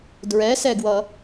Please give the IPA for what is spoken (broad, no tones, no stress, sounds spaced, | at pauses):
d ɹ ɛ s ɛ ɡ w ʌ